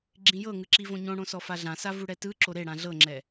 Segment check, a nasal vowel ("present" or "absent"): present